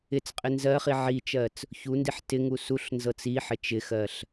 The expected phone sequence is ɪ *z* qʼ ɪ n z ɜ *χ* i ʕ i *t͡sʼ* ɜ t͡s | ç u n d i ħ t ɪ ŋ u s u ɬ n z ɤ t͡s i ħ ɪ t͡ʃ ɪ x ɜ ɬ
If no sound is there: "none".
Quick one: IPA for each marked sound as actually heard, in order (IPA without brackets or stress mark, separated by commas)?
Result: t͡s, χ, t͡ʃ